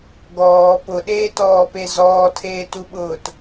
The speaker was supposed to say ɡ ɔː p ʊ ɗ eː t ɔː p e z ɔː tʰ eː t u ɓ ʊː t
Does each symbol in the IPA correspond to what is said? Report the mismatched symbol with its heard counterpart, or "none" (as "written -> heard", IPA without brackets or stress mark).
none